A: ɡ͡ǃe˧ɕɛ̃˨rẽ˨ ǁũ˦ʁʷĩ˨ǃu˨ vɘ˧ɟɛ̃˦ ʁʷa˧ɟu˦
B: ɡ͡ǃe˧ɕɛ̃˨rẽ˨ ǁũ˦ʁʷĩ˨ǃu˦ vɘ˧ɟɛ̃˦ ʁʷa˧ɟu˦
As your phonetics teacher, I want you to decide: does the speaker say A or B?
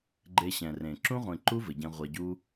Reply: B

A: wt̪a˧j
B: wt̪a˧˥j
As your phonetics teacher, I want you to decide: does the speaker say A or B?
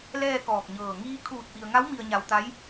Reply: B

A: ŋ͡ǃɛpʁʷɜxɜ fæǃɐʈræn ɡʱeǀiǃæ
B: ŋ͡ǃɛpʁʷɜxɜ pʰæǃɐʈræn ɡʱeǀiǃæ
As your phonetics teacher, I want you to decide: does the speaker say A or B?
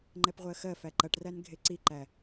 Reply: A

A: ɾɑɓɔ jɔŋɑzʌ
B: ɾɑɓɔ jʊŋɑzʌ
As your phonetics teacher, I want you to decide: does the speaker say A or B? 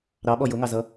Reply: B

